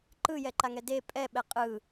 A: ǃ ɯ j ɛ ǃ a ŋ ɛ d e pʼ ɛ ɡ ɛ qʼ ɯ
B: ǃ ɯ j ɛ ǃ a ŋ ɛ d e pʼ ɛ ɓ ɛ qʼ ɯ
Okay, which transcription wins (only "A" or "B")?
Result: B